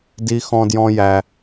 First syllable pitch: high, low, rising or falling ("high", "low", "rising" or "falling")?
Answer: high